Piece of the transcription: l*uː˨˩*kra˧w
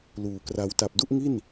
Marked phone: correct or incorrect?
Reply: correct